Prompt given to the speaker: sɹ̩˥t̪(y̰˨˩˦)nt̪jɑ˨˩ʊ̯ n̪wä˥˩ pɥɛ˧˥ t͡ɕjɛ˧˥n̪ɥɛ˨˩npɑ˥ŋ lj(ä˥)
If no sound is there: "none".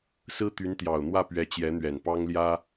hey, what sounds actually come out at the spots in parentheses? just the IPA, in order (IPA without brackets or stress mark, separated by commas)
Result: y˧˥, ä˥